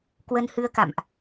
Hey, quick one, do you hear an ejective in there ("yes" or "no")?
no